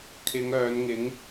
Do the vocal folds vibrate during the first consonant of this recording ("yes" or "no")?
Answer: no